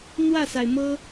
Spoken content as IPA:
n̪ w ä˥˩ s a˩ ɪ̯ m ɤ˥

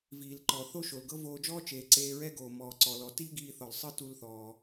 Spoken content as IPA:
v iː˩ l ǃ ɔ˩ θ o˥ ʃ o˩ l ɡ ɤ˥ v oː˧ d͡ʒ ɔː˥ t͡ʃ eː˩ ǀ eː˧ ɹ ɛ˥ ɡ oː˩ m ɔː˩ ǀ ɔ˩ l ɔ˩ t iː˥ ɡ iː˧ θ ɔ˩ l sˤ ɯ˥ t u˧ l θ ɔː˩

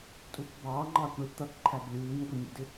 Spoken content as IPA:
tʼ u kʷ b ɑː ŋ͡ǃ ɑː kʷ ɳ ɪ t̪ ʌ k ǃʰ æ b lʲ uː ɲ ɡʷ ɪ nʲ ṵ d ɪ

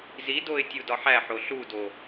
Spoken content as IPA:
z i d o ɪ̯ tʲ u d ɒ ħ æ ħ o ɬ u d o

